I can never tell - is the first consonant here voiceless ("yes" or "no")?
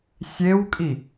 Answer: yes